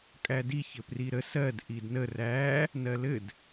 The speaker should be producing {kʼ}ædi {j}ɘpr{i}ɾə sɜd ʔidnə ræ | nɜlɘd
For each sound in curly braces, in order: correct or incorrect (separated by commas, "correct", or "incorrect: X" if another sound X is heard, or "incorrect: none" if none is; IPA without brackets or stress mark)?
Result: correct, incorrect: ç, correct